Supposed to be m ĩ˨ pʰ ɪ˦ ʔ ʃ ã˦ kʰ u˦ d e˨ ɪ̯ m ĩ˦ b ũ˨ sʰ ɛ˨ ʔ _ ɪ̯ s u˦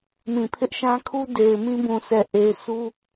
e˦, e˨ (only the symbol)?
e˨